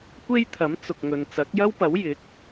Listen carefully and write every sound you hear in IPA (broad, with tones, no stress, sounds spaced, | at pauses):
kʷ e˥ j t̪ʰ ɐ˨˥ m t͡s ʊ˨ k̚ ŋ ɵ˨ n t͡s ɐ˨˥ k̚ j ɐ˥ w p ɐ˨˥ w j ɪ˨˥ k̚